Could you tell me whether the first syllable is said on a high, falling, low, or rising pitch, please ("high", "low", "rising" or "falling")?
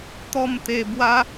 falling